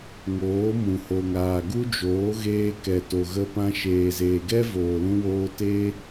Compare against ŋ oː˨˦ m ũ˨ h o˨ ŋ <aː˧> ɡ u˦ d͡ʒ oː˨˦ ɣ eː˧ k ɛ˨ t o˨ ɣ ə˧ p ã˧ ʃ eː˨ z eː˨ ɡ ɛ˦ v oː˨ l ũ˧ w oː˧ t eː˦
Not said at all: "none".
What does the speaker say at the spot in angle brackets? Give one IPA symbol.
aː˨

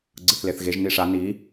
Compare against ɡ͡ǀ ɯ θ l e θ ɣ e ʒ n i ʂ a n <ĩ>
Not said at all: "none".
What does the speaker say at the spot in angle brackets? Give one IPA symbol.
i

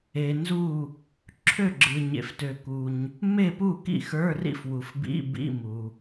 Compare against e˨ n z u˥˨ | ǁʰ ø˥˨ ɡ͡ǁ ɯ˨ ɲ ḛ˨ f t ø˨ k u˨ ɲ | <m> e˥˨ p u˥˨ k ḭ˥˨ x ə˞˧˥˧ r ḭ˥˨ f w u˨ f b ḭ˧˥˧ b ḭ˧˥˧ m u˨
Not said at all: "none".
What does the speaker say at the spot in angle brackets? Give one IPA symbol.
m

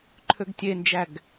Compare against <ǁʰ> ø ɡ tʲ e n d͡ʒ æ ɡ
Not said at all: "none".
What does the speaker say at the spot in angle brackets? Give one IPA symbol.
ǃʰ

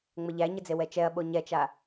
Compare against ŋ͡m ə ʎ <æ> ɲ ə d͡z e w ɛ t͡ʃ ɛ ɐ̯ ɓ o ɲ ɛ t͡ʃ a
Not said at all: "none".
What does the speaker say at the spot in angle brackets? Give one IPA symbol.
æ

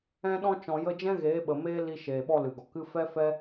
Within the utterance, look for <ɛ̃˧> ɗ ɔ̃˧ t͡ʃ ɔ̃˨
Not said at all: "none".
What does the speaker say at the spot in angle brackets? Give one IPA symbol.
ɛ̃˧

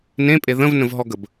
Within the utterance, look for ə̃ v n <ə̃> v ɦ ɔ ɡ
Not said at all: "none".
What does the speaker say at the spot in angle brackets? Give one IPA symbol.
ə̃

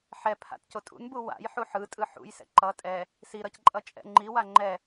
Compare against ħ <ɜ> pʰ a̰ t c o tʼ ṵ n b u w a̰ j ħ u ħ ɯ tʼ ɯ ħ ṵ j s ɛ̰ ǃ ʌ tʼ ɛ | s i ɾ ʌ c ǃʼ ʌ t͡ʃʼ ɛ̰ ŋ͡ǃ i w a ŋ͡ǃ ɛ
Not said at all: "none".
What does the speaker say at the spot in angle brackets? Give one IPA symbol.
ɛ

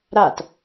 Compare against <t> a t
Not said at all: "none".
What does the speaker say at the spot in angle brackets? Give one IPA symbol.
ɾ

